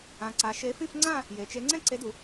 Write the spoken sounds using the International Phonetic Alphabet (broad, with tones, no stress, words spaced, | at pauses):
ã˩˧ǀa˩˧ ʃe˨˥fĩ˥˧f ŋ͡ǀã˥˧ | je˩˧t͡ʃe˨˥ ŋ͡ǀɛ̃˥˧ǀe˨˥du˩˧